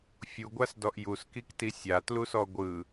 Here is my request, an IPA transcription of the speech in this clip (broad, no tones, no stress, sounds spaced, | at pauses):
fʲ u ɡʷ a s d ɔ ʔ j u s k i k t i sʲ a t l u s ɔ ɡʷ ɯ